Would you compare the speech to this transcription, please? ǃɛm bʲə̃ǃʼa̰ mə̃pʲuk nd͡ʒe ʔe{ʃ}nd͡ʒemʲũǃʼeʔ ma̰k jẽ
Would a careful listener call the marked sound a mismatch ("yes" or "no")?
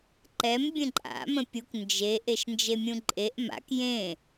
no